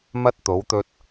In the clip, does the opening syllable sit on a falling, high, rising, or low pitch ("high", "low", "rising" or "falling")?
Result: high